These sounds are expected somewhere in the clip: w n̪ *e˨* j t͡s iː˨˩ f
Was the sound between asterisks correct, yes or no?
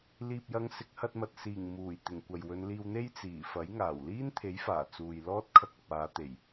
no